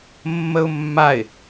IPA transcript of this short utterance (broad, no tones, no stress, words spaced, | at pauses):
mːəʊ̯mːaɪ̯